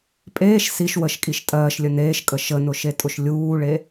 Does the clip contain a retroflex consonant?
yes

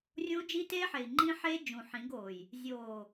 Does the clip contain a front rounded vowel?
no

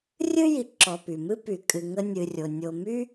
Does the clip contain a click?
yes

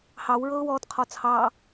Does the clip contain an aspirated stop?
yes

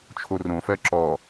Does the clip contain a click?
yes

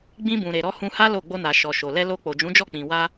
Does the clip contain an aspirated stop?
no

